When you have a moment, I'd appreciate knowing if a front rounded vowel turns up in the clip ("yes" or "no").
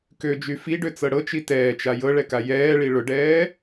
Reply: yes